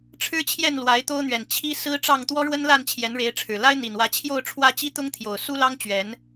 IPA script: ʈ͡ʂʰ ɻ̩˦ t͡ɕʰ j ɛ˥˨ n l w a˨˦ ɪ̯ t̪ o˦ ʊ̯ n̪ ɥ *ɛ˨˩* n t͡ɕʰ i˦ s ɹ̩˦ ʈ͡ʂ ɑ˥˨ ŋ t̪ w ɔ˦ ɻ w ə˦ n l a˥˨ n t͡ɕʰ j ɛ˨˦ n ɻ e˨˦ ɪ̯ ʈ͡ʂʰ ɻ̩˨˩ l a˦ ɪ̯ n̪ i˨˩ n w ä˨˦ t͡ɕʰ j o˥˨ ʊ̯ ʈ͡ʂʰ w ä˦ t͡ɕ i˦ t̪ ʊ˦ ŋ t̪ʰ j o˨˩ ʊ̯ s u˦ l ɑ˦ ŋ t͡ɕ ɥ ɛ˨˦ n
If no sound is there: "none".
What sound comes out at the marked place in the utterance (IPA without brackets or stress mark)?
ɛ˨˩